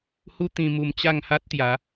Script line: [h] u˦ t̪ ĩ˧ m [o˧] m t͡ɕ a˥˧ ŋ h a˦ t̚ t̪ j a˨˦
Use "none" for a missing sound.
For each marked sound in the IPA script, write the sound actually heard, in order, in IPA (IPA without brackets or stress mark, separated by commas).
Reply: h, u˧